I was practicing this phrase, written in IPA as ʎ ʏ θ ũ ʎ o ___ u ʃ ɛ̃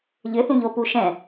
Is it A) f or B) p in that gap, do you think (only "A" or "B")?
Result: B